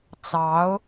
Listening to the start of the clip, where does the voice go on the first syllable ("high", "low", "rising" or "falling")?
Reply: rising